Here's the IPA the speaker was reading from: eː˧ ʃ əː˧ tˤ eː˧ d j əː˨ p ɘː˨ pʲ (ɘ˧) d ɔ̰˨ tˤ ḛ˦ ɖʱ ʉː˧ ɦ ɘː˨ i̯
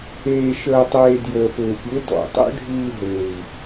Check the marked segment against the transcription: incorrect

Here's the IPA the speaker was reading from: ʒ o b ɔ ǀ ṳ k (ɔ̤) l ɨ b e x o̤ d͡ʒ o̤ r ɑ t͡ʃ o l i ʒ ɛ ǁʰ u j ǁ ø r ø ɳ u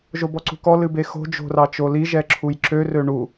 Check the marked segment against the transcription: incorrect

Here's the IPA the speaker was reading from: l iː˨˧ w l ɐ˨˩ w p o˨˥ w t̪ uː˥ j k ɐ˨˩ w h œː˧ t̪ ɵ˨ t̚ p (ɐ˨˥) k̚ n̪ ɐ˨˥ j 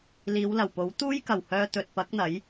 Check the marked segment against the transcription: correct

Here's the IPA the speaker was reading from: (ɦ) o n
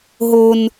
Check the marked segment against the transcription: correct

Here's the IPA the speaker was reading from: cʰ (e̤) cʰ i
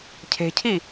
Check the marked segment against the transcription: correct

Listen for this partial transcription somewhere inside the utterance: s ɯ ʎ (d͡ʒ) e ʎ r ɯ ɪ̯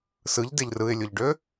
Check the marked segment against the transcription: incorrect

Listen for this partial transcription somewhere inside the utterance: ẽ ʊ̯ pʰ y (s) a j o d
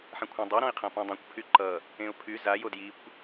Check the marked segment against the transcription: incorrect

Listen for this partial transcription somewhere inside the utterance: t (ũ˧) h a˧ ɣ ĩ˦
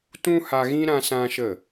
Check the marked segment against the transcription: incorrect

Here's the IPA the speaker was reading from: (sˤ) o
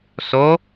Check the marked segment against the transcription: incorrect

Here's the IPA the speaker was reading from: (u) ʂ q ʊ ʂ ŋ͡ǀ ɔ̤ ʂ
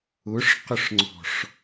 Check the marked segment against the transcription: incorrect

